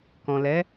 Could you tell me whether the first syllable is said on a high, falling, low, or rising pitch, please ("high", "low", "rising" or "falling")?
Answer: low